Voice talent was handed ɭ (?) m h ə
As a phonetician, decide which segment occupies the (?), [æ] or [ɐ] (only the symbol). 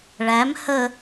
æ